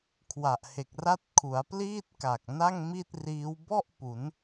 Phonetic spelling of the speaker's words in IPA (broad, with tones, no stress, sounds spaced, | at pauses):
kʰ w a˨˩ ʔ h e˨˩ k̚ r a˥˩ t̚ kʰ u˩˦ a̯ p l iː˥˩ t̚ k a˨˩ k̚ n a˥˩ ŋ m i˥˩ t̚ r iː˦˥ w b ɔ˥˩ ʔ p u˩˦ n